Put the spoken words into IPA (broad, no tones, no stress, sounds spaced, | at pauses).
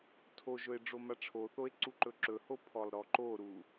tʰ o ʒ ɵ e̯ ɖ͡ʐ o m a ʈ͡ʂʰ o θ o e̯ ǀ u ǃ ɵ ǁ ɵ h o pʰ ɔ lˠ ɾ ɔ ǃ o ɾ u